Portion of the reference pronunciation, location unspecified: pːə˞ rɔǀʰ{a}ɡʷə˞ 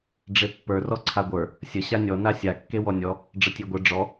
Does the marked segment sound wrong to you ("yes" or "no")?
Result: no